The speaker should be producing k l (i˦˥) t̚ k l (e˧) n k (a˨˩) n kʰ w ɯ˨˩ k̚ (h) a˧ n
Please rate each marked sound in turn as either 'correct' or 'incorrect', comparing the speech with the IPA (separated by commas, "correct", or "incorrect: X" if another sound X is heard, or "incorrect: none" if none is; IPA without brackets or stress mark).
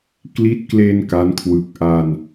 correct, correct, incorrect: a˦˥, incorrect: ʔ